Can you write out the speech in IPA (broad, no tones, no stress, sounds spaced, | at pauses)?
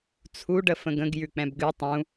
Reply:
t͡sʰ u ɖ ə f ə̃ ɡ ə̃ ɡ j ʉ k͡p ɛ̃ b ɡ ʉ tˤ ũ